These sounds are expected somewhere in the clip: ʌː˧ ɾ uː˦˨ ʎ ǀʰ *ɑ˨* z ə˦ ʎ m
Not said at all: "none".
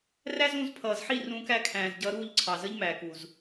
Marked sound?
ɑ˨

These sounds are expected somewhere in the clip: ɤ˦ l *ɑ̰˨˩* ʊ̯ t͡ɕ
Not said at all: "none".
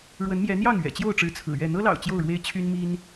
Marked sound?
ɑ̰˨˩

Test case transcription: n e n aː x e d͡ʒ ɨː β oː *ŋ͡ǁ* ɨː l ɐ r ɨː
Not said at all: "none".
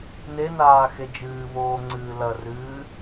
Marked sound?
ŋ͡ǀ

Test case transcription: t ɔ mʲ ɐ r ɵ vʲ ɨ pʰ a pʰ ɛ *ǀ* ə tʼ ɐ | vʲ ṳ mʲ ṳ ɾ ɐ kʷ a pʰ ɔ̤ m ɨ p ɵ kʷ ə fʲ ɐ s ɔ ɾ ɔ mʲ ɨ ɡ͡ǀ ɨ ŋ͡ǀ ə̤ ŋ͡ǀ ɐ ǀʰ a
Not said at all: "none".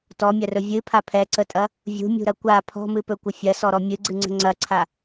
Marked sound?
ǀ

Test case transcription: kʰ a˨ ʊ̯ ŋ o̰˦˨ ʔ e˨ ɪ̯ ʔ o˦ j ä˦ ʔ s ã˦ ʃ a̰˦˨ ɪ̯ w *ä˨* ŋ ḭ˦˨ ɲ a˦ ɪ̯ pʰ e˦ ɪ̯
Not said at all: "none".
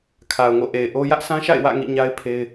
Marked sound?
ä̰˦˨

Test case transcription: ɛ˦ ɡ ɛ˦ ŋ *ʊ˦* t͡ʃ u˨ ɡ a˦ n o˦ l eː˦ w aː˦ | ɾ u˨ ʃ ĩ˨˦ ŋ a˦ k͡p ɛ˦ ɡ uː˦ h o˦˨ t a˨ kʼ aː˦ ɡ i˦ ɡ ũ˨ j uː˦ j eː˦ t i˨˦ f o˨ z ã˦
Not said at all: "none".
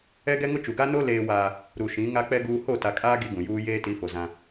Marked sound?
ʊ˦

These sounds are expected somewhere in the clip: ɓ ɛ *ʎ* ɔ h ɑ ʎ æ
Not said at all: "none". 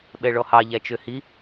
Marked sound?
ɭ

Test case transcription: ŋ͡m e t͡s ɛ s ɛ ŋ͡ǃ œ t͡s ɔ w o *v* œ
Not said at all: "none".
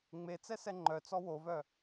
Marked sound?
v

